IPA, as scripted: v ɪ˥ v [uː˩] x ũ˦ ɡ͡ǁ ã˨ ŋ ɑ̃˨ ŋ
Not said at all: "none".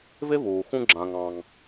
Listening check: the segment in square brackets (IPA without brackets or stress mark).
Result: uː˩